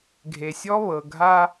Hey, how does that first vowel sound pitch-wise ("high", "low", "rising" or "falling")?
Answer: low